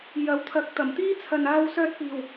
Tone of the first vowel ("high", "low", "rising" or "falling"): rising